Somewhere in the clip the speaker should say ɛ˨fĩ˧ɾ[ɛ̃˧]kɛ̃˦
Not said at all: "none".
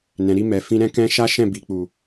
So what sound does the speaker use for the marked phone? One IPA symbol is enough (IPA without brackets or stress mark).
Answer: ɛ̃˦